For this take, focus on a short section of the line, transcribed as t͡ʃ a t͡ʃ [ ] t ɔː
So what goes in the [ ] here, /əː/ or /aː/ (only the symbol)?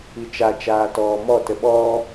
aː